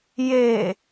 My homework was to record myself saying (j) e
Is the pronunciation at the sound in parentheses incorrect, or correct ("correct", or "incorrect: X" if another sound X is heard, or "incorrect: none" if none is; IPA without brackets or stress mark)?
correct